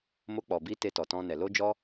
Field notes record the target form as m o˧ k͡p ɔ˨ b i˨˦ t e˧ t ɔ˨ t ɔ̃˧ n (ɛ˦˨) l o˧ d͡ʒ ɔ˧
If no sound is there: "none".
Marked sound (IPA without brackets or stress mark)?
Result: ɛ˨